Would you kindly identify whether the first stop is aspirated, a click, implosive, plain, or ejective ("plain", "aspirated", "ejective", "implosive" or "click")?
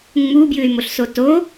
plain